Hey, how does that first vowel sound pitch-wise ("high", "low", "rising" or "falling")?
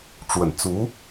low